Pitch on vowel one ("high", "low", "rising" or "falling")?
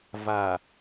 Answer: low